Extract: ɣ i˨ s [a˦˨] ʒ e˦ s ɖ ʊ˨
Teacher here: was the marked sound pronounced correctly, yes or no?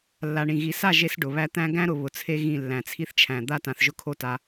yes